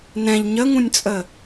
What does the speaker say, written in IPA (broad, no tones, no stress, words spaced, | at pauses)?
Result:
nɛ̃ʎ ɲəŋũnʲt͡sʼə